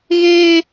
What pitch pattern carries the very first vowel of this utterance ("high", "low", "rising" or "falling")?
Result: high